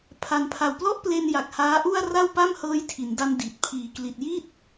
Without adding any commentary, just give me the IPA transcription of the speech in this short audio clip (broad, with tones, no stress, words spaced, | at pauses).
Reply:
pʰa˩˦npʰa˨˩wplɔ˥˩ʔple˧n ja˨˩k̚haː˦˥ʔu˥˩a̯ ra˥˩wpa˥˩m hɤː˦˥jtʰi˩˦nda˧n di˨˩t̚ pʰiː˨˩kli˨˩t̚ji˥˩t̚